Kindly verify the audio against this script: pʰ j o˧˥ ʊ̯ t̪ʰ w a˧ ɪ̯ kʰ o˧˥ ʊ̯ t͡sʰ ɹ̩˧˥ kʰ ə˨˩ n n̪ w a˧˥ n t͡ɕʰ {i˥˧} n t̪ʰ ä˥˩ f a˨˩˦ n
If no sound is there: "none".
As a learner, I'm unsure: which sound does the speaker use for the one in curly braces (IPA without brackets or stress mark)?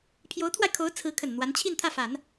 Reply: i˥˧